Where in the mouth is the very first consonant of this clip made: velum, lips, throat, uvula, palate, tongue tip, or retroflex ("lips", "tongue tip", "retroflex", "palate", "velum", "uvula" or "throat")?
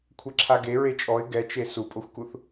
velum